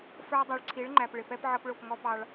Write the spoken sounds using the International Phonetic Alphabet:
f ə˞˦ dˤ ə˞˨ ɭ ǀʰ i˨˦ ɭ ŋ͡ǃ æ˨ p ɭ ɪ˨ p ɛ˦ p ʕ ʌ˦ p ɭ ʊ˦˨ p ŋ ɔ˦ p ɑ˦ ɭ

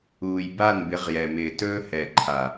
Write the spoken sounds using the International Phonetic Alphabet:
uː˨ j b a˦˨ n b ɪ˨˦ ʁ j ɛ˨ m ɪː˨ t ɵː˦ h ɛ˨ ǃʰ a˨

